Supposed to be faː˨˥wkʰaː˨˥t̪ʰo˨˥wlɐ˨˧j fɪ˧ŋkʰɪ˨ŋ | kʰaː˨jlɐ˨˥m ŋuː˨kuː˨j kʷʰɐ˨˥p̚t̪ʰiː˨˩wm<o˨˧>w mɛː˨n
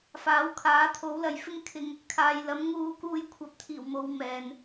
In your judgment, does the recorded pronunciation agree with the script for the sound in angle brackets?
yes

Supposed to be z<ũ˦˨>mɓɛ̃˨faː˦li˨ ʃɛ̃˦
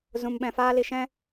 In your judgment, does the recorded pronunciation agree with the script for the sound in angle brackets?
no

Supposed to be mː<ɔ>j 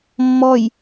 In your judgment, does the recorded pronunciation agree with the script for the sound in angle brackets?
yes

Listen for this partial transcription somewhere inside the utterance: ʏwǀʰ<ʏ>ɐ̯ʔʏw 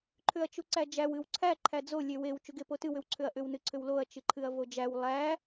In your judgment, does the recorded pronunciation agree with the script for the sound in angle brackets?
yes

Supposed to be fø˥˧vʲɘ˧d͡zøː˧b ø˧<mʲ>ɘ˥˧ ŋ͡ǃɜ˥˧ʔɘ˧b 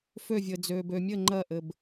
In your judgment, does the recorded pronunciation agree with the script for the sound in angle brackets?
yes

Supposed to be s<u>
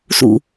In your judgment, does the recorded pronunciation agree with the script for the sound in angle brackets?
no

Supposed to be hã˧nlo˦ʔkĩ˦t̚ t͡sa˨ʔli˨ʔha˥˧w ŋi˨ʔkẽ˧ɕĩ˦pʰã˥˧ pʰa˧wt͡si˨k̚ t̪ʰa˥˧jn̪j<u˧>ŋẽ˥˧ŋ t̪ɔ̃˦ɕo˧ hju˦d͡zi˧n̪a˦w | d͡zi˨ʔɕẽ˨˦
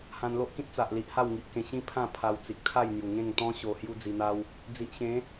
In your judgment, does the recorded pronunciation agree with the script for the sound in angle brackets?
no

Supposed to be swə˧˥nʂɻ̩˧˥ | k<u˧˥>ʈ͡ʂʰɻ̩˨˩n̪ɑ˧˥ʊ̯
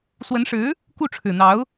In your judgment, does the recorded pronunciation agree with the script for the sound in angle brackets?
no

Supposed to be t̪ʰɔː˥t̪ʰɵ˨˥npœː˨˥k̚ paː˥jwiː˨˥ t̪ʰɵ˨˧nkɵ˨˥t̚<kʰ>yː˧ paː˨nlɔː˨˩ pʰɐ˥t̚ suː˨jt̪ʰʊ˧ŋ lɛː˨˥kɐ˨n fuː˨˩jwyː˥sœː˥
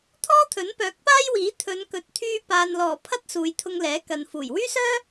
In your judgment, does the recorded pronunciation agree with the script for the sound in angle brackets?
no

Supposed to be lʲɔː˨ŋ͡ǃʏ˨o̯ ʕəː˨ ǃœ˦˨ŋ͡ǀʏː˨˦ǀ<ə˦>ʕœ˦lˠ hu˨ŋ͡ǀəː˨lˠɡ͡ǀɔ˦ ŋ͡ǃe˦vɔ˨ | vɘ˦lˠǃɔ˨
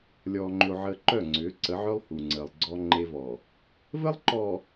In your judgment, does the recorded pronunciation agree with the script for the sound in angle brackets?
no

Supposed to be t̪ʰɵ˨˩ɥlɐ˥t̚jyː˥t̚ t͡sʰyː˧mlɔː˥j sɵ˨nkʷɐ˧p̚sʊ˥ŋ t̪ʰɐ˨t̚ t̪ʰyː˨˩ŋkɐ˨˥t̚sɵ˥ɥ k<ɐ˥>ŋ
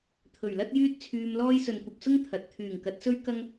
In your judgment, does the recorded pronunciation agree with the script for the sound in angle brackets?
yes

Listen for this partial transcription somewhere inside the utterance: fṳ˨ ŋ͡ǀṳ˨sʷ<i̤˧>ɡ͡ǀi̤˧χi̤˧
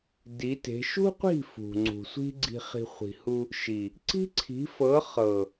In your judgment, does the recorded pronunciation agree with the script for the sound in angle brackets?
no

